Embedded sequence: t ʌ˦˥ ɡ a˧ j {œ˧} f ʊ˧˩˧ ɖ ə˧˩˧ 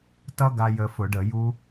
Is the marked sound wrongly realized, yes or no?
yes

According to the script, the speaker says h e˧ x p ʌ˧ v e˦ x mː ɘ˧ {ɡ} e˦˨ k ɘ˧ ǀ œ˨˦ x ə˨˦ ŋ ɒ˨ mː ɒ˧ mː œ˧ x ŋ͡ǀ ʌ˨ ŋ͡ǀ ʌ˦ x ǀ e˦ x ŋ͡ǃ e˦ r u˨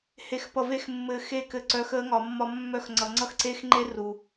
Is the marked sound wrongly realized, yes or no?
yes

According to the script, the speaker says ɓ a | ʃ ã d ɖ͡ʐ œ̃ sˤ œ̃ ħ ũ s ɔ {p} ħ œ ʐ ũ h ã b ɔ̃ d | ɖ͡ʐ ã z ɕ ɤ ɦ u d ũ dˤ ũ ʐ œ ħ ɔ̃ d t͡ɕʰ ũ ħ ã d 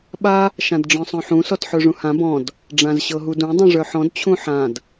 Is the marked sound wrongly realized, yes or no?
yes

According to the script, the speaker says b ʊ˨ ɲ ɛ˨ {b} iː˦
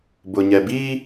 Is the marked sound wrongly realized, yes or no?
no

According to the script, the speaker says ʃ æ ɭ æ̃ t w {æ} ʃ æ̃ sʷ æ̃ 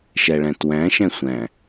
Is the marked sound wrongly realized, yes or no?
yes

